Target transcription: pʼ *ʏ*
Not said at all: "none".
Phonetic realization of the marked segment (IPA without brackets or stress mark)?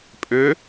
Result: ʏ